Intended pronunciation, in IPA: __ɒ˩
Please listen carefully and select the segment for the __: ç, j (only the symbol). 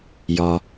j